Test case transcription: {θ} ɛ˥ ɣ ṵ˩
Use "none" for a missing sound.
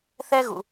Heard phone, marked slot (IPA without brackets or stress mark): θ